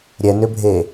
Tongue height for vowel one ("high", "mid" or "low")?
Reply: mid